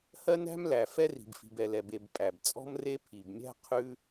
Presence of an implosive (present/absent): absent